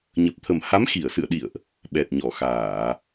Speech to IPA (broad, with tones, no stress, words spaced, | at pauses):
ɲə˨˩p̚t̪ʰə˨˩mha˨˦m xi˧˩ə̯sɨ̰˧˨ə̯ɗḭ˧˨ə̯ʔ | ɓɛ˨˩t̚ɲɔ˧˩xaː˧˩˨